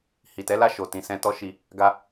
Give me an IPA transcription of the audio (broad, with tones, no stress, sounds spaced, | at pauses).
h i˨ t ɛ˨˦ l a˦˨ ʃ o˨ t ĩ˨ s ɛ̃˧ t ɔ˦ ʃ i˧ | ɡ a˧